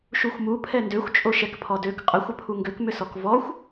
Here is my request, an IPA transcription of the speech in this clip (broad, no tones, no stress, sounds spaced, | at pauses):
ʃ u xʷ m u pʰ ɛ n d ø xʷ t͡ʃʼ o ʃ ɛ k pʰ ɔ d ø k qʼ ə xʷ ə pʰ u ŋ ɡ ø k m ʏ s ɔ k v ɔ xʷ